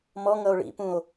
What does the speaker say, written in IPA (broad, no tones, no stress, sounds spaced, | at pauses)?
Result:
m ɔ ŋ ʌ o̯ ɭ ḭ p ũ o̯